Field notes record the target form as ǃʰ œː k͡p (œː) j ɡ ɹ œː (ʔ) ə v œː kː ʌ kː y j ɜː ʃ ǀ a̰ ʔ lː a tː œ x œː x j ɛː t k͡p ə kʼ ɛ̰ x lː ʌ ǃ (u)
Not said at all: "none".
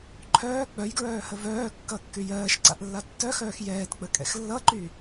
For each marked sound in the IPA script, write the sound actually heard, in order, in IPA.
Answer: œ, h, y

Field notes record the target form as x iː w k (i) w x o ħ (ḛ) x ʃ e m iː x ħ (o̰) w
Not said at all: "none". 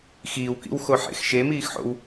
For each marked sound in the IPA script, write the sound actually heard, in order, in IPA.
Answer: ḭ, ḛ, o̰

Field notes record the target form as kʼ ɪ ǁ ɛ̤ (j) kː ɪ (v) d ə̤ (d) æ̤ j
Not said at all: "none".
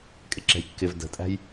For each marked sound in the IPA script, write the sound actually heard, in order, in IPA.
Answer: j, v, tʼ

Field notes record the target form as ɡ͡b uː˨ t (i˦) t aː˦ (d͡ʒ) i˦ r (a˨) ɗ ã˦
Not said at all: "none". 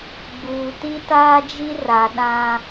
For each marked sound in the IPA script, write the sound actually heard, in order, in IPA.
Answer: i˦, d͡ʒ, a˨

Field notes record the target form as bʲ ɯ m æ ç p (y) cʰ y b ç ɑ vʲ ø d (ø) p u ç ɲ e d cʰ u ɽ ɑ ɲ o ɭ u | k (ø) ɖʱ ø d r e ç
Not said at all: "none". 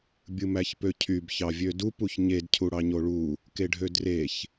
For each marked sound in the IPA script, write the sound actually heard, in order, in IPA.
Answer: ø, u, e

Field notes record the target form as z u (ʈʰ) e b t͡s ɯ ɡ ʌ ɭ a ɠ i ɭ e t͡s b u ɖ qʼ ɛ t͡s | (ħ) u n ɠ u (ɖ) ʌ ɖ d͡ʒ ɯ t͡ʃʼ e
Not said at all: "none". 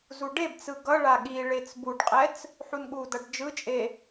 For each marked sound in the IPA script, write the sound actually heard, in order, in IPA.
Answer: ɖ, ħ, d

